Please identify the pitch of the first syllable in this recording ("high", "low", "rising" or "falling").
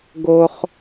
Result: high